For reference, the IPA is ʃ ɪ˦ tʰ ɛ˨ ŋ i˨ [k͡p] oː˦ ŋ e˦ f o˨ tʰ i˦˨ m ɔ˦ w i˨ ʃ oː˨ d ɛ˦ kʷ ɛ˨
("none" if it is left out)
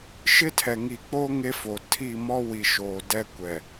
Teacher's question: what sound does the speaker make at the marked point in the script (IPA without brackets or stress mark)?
k͡p